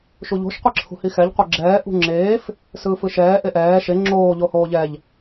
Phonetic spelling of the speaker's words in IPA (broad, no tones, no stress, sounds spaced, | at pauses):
ʃ u ʎ o̤ ʃ qʷ i ǁʰ ṳ h i x ɛ ʎ qʷ e ɡ͡ǁ ɛː ʔ ṳ ŋ͡ǁ eː f | s ɯː f ɯ ʃ ɛː ʔ e ʔ ɛː ʃ e ŋ͡ǁ oː ʎ o h oː ʎ ɛ ʎ